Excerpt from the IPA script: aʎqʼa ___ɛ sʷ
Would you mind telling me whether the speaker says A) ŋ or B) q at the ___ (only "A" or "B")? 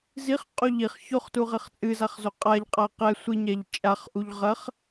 B